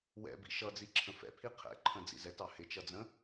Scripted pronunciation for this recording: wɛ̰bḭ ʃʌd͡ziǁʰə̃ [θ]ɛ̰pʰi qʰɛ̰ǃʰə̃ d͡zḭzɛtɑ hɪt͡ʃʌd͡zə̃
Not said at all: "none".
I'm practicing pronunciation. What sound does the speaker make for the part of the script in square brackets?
f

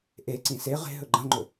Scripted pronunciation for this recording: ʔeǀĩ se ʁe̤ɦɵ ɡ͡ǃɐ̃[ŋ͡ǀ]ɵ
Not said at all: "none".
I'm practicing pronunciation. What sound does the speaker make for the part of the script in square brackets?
ŋ͡ǃ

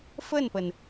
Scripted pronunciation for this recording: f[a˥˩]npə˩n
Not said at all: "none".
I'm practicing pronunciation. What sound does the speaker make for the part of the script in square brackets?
ə˥˩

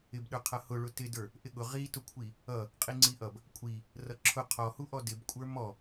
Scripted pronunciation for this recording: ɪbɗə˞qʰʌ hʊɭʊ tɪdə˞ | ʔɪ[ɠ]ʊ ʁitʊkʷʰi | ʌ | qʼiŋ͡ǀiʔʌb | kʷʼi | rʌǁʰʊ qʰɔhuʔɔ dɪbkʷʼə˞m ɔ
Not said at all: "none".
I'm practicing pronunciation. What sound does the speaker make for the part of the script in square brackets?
ɠ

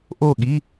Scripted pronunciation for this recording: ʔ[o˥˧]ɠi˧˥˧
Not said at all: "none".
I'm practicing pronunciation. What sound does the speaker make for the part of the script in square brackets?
o˥˧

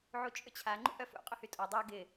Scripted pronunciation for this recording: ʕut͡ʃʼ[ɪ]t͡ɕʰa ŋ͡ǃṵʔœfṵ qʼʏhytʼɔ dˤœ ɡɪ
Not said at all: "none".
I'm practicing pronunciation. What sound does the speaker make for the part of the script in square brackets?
ʏ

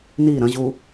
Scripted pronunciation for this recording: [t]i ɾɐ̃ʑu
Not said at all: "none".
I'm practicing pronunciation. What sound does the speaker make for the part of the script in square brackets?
n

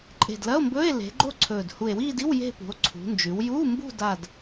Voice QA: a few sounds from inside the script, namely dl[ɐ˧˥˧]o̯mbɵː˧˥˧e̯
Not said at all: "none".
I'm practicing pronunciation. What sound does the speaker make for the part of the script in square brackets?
ɐ˧˥˧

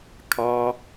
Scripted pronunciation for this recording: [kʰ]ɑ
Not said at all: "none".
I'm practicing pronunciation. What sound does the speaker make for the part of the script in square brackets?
kʰ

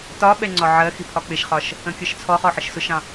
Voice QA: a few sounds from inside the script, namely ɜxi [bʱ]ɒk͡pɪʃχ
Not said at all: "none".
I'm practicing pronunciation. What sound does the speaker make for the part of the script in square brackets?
pʰ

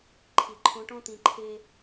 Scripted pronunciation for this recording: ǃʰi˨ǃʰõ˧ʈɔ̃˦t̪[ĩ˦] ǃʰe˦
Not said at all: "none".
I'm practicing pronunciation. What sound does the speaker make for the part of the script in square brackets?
ĩ˧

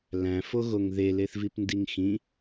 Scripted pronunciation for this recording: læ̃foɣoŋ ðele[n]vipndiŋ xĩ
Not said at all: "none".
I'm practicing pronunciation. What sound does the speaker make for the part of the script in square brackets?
θ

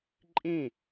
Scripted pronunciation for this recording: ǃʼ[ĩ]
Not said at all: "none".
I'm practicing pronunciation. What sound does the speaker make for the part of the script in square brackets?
ĩ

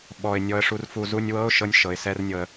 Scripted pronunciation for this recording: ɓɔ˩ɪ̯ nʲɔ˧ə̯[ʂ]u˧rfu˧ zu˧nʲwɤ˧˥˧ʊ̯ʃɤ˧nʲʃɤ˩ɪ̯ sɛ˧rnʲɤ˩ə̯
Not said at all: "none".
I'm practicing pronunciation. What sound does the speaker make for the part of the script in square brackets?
ʂ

